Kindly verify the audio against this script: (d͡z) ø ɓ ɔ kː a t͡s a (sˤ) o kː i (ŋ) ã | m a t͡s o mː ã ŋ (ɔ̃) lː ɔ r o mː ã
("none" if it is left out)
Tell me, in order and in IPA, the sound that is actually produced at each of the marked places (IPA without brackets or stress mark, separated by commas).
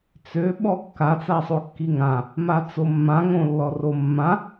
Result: t͡s, sˤ, ŋ, õ